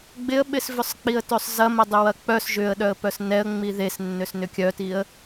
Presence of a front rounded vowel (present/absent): present